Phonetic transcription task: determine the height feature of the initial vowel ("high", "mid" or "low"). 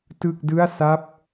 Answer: high